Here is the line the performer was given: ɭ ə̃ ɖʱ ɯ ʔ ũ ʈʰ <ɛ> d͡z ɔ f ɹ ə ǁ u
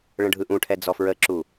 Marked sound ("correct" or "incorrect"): correct